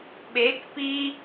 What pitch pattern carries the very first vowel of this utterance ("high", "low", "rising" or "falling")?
rising